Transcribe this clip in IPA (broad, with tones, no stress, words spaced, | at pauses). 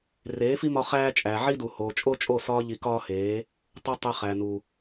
reː˨˦fi˦mɒ˧ χæː˦ t͡ʃʼæ˨ʕi˦ du˨hoː˨ t͡ʃʼo˦t͡ʃʼo˦˨ sɒː˧ʎi˨ kɒː˦heː˨˦ | tˤu˧ tˤe˧χæ˨nu˨